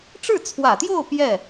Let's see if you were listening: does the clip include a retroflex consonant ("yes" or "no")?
yes